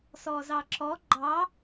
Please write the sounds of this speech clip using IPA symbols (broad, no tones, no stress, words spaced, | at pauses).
sɔzɑǁɔ ɡ͡ǃɑ